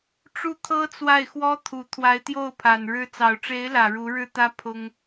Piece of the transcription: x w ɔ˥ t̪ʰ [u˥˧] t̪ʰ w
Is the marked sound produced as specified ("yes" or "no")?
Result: no